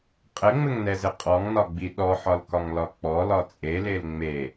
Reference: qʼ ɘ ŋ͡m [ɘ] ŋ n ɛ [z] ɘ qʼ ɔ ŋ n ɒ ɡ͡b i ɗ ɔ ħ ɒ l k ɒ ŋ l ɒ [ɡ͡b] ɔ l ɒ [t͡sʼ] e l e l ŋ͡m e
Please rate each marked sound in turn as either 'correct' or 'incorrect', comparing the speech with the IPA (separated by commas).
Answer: correct, correct, incorrect, correct